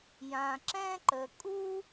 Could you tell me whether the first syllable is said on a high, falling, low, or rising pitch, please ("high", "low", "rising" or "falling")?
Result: low